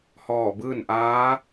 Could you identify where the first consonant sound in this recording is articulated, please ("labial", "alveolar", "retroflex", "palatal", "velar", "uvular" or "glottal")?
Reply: glottal